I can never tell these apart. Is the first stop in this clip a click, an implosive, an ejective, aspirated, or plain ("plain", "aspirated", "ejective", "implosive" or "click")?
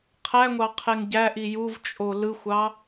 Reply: aspirated